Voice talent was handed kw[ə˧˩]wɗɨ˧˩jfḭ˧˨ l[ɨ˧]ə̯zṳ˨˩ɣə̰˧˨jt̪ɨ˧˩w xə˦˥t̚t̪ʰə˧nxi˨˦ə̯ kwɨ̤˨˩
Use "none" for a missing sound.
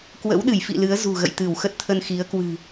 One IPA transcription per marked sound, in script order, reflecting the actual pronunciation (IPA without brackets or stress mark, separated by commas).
ə̰˧˥, ɨ˨˦